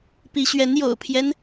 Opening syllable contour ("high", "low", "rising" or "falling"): rising